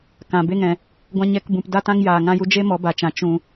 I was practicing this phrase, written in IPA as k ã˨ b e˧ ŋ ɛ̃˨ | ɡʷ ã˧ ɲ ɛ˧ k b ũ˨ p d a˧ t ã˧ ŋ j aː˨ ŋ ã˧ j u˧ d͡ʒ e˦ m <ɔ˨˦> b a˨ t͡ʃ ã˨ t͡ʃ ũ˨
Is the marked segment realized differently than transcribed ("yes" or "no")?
no